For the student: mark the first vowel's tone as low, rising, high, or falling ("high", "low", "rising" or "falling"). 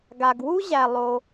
low